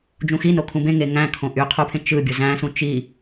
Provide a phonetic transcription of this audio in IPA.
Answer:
d͡ʒũxino kʰũbẽ ŋeŋæ̃kʰõ ʔyqʰupʰẽ t͡ʃɯ bʲuzæ̃ sũt͡ʃi

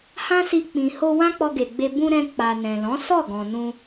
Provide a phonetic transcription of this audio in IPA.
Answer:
hã˦si˧ k͡pĩ˨ho˧ wã˦k͡pɔ˧ɡe˨ɡ͡be˧ bũ˧ ɾɛ̃˧ k͡pa˨ nɛ̃˨lɔ̃˨˦ sɔ˦˨ɡɔ̃˨ nũ˧

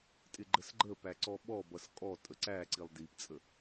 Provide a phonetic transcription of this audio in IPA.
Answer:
tʼɪɡ͡ǃəsɡ͡ǃəpæ ǀɔɓɔbʌs kʼɔ tʼəǀæǀilˠ dipt͡sʼə

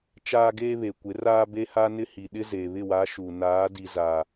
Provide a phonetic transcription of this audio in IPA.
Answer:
t͡ʃaː˦ɡeː˦βe˨ kʷɪ˨˦raː˦be˦ ha˦nɪ˦hi˨ ɗɪ˦zeː˨βɪ˦˨ wa˨˦ ʃu˨ naː˨˦di˨zaː˨

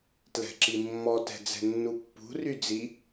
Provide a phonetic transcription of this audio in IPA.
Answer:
tlɛ̤ǁimːɔtɛ̤ d͡zɛ̤nːupːṳry d͡zi

